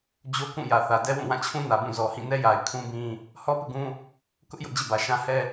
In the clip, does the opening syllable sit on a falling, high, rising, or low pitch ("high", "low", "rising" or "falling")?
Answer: high